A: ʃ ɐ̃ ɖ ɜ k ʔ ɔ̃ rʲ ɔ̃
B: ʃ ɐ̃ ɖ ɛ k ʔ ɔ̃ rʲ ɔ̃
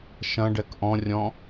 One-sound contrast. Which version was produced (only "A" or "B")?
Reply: B